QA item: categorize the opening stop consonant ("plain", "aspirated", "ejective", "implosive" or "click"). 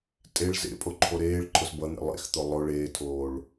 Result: ejective